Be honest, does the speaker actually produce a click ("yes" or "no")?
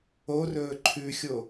yes